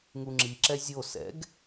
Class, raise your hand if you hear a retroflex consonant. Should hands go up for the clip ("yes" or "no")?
no